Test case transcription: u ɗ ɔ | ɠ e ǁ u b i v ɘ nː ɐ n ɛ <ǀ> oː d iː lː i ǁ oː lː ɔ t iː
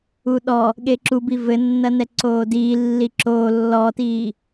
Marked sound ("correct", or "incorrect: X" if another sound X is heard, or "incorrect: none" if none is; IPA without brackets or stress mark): correct